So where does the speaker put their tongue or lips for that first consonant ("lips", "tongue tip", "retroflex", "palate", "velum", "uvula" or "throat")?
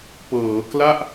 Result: lips